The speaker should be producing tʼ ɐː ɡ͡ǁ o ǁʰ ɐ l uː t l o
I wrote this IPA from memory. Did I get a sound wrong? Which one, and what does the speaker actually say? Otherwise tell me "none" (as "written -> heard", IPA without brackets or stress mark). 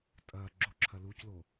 t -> c